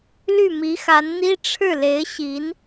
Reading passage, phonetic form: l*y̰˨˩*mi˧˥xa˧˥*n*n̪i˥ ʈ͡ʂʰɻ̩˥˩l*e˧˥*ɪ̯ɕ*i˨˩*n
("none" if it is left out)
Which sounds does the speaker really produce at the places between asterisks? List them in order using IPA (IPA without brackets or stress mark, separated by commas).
y˥˩, n, e˧˥, i˧˥